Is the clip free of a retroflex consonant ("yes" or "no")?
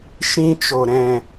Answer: yes